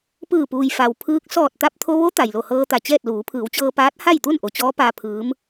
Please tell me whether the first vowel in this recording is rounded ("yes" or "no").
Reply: no